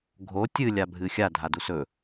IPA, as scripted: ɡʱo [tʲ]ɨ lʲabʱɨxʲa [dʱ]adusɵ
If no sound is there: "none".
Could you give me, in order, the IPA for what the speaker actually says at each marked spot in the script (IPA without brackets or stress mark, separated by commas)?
tʲ, dʱ